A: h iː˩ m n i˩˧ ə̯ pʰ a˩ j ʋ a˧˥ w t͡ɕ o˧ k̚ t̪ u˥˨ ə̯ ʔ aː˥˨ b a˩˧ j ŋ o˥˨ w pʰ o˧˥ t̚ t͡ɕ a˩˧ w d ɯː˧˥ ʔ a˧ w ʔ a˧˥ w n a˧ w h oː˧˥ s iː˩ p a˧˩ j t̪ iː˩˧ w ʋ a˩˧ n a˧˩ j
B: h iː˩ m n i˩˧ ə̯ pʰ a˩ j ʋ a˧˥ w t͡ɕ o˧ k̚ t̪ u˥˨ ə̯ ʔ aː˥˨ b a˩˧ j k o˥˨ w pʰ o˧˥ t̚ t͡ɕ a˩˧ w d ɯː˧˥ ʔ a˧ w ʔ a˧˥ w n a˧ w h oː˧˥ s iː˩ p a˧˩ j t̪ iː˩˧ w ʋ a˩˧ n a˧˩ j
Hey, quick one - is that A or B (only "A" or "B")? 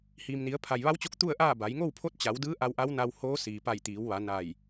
A